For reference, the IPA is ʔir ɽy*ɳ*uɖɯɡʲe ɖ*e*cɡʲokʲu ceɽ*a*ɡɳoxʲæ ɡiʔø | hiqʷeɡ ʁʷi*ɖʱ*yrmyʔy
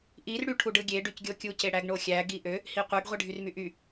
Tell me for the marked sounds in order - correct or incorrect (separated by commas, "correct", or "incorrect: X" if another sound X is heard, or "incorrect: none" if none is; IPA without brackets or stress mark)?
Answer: incorrect: ʈʰ, incorrect: y, incorrect: æ, correct